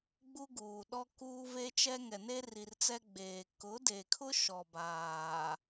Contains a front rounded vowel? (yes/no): no